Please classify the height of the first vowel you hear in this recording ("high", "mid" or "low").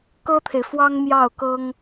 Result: mid